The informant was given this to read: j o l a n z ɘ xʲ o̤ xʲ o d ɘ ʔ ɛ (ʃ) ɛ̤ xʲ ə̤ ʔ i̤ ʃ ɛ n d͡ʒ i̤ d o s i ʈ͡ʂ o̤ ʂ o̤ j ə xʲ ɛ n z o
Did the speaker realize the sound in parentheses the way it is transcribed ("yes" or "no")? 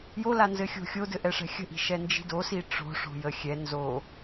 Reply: no